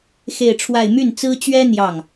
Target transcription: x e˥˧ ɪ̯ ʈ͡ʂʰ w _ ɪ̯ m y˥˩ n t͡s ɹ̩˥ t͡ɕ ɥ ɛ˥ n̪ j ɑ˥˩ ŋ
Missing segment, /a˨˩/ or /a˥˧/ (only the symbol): a˥˧